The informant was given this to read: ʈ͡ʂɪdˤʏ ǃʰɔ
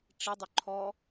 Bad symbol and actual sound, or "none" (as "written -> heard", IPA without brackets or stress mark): none